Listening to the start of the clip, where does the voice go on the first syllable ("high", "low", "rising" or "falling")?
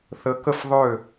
rising